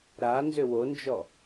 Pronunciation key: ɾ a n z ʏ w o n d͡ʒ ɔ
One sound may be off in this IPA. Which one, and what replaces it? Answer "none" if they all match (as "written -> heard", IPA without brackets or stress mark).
none